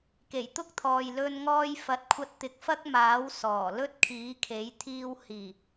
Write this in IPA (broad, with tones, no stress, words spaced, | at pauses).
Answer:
ke˨˩jt̪ʊ˥k̚t̪ʰɔː˨j lɵ˥nŋɔː˥j fɐ˨˥t̚kʷʰɐ˧t̚t̪ɪ˨˥k̚ fɐ˥k̚maː˨˥w sɔː˨˩lɵ˥t̚kʰiː˨˥kʰe˨˥j t̪ʰiː˧whiː˨˩